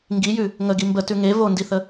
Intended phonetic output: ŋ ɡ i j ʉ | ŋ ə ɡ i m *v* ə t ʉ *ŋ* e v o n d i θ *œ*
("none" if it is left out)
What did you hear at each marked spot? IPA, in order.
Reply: b, ŋ, ə

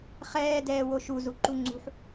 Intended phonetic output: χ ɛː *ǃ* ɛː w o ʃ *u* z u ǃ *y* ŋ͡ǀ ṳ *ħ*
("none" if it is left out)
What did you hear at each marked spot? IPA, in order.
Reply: d, u, u, ħ

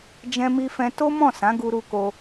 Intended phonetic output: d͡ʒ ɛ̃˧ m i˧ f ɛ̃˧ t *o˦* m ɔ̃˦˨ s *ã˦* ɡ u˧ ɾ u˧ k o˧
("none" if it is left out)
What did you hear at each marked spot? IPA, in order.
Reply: o˦, ã˨˦

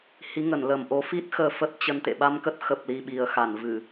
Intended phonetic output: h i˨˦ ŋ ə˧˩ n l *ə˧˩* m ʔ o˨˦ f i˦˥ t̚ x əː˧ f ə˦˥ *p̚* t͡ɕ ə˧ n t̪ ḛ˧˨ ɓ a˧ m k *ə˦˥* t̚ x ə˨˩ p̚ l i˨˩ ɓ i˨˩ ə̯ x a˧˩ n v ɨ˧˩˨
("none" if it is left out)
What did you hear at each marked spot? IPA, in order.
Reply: ə˧˩, t̚, ə˦˥

